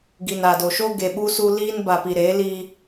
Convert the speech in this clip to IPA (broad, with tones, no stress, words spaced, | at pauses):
ɡi˨na˨do˨ʃo˦ ɡe˨ɓu˦su˦ liː˦nba˨pi˨ɾeː˨˦ liː˦